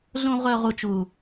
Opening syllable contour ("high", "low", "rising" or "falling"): low